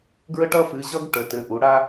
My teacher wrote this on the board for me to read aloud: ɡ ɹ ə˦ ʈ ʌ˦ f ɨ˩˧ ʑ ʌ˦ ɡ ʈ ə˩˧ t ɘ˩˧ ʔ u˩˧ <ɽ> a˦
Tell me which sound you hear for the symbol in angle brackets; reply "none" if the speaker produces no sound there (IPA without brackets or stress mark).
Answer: ɽ